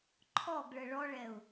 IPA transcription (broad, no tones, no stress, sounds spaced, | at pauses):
ǃʰ ɔ ɡ ɭ ə ɭ ɔ ɭ ɛ ʊ̯